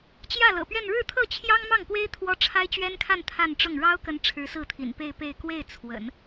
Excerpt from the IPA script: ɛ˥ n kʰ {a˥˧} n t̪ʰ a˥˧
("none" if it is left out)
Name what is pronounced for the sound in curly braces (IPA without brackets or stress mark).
a˥˧